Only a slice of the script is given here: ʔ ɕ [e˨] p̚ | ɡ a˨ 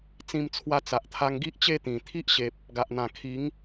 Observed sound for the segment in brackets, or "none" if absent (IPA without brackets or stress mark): e˨